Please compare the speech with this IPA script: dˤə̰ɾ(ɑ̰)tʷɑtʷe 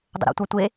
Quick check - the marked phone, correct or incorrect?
incorrect